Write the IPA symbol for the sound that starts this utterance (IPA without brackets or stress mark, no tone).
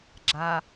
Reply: ɡ͡ǁ